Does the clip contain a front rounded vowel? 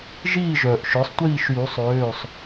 yes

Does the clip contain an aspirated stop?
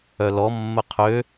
yes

